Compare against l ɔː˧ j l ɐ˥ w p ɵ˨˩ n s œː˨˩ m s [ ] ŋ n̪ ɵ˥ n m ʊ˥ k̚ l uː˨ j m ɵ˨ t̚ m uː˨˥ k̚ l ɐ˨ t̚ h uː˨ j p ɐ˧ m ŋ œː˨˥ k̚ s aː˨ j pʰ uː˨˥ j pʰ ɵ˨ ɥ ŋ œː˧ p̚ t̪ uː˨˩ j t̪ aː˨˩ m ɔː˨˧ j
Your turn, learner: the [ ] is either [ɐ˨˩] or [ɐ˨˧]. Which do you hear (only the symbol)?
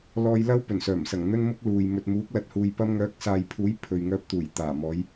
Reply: ɐ˨˩